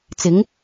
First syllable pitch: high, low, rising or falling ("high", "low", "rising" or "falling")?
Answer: rising